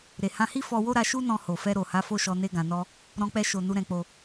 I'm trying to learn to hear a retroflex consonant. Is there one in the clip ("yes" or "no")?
no